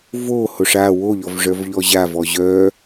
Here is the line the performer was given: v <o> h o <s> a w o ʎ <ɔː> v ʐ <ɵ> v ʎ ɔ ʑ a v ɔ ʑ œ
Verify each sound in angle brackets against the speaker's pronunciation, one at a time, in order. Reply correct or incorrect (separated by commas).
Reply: correct, incorrect, incorrect, incorrect